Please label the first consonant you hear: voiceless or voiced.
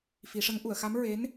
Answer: voiceless